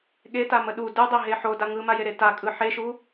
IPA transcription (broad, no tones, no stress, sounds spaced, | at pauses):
ɠ e t a m ə ɗ u d ɯ dˤ e ɦ e ħ o d a ŋ ɯ m a j e ɾ e t a kʼ ɯ ħ e ʃ u